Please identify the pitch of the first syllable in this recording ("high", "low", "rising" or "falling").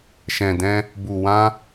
low